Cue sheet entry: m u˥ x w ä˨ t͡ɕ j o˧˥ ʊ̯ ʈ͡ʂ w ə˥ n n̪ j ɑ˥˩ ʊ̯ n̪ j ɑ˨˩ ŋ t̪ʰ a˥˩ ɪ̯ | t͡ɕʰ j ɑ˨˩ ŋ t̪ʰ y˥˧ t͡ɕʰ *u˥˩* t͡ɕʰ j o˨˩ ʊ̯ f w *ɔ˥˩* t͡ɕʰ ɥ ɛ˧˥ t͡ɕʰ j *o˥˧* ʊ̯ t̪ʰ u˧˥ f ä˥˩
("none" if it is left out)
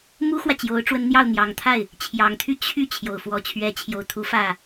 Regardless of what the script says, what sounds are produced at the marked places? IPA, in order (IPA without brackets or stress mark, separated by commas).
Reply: y˥˩, ɔ˧˥, o˧˥